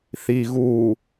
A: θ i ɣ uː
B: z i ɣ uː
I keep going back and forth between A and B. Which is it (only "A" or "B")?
A